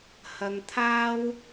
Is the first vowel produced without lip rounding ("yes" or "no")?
yes